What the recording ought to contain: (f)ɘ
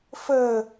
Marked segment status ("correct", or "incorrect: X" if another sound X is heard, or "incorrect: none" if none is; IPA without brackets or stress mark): correct